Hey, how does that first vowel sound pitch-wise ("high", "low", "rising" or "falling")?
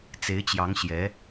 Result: rising